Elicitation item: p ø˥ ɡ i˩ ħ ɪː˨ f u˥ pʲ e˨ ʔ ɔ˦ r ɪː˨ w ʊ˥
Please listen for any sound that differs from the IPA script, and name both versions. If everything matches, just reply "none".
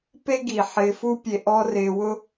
ø˥ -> e˥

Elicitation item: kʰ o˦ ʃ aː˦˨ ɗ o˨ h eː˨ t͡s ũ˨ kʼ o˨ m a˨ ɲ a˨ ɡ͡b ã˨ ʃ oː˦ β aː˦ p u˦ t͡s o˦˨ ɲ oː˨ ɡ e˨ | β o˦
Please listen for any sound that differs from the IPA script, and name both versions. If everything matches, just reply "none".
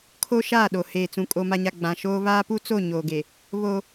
none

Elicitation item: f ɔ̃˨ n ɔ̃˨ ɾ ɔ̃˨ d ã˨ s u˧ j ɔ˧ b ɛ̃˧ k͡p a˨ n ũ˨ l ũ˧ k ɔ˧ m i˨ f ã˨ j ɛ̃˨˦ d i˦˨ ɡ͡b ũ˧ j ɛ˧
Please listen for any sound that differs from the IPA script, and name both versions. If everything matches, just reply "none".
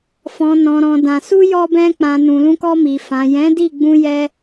a˨ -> ã˨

